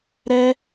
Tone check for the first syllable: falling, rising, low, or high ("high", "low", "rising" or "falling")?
high